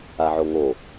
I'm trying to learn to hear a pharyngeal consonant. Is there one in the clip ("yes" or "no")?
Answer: yes